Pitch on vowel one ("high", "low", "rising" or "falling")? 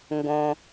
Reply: low